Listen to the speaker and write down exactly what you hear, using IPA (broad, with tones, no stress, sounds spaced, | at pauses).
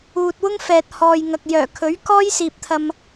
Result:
uː˨ t̚ w ʊ˥ ŋ f ɛː˨ t̚ h ɔː˨ j ŋ ɐ˨ k̚ j œː˨˩ kʰ ɵ˨˥ ɥ k ɔː˥ j s iː˨ p̚ t̪ʰ ɐ˨ m